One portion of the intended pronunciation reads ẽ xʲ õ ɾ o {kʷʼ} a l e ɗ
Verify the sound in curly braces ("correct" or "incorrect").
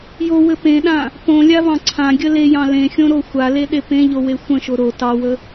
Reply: incorrect